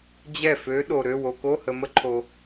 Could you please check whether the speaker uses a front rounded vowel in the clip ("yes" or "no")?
yes